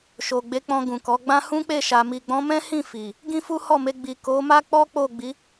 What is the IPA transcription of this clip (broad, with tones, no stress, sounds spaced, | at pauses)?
ʃ o˨ ɡ͡b e˨˦ k͡p ɔ̃˧ ɡ ũ˨ k ɔ˨˦ ɡ͡b ã˦ h ũ˦ k͡p e˦˨ ʃ a˨ m i˨ ɡ͡b ɔ̃˨˦ m ɛ̃˦ h ĩ˦˨ f i˨ | ɡ ĩ˦ f u˦ h ɔ˦˨ m e˧ ɡ͡b i˨ k o˨˦ m a˦ k͡p ɔ˦ k͡p o˦˨ ɡ͡b i˨˦